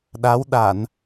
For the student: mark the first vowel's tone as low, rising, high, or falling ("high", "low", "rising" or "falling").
rising